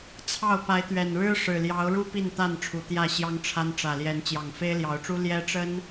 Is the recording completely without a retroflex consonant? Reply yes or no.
no